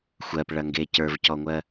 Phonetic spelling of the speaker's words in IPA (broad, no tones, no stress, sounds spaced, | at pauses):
xʷ ɜ p ɭ ɐ ŋ ɡ e c ə˞ v c ɔ ŋʷ ɜ